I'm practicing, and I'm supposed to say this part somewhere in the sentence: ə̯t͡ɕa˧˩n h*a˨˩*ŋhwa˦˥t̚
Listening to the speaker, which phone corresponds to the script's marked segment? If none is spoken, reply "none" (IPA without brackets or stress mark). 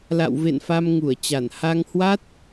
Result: a˧